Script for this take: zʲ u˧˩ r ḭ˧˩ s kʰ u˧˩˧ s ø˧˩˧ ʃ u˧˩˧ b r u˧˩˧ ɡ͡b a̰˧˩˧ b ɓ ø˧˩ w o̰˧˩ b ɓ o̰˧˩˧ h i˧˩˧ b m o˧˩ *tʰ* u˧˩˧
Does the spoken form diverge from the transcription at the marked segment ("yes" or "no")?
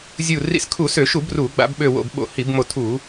no